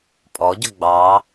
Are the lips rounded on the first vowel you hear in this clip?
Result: yes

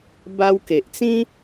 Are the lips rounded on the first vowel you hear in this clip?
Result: no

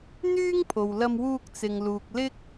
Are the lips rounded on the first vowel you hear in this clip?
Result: yes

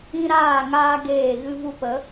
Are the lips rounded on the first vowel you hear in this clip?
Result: no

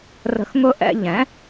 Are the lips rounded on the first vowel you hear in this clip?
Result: no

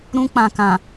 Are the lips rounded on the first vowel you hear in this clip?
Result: yes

